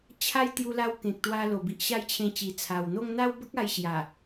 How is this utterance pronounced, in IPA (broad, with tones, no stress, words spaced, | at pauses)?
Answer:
t͡ɕʰa˦j t̪ju˧la˧w kẽ˨k̚t̪wa˧lo˨˩ bi˨ʔɕa˥˧jt͡ɕʰẽ˧ t͡ɕi˨˩t͡sʰa˨˩wn̪o˦ŋ n̪a˦wbə˦k̚ a˧jɕja˨˩